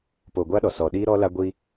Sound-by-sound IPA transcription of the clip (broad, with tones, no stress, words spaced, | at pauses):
po˨ɡʷa˦ɗɔ˨ sɔ˨ɗiː˦ɾɔ˦la˦ ɡʷiː˦